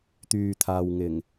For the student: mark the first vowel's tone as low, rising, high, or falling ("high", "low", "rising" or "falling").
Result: low